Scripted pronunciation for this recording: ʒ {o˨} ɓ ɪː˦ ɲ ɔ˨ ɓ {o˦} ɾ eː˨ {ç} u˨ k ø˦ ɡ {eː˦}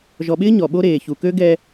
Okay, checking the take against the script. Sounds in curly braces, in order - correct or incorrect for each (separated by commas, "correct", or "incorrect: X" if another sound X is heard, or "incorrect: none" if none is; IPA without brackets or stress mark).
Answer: incorrect: ɔ˨, correct, correct, incorrect: ɛː˦